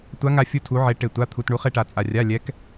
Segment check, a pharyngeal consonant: present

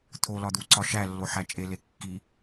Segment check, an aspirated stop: present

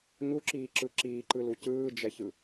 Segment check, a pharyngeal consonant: absent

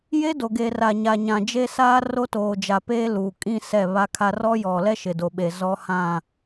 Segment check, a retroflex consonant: absent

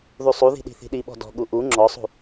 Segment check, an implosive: present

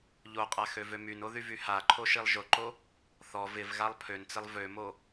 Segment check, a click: present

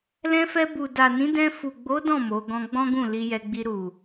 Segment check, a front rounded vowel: absent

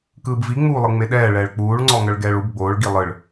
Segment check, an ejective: absent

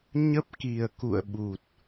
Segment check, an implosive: present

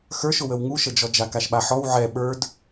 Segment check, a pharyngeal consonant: present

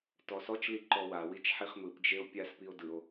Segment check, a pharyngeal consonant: present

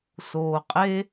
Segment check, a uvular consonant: present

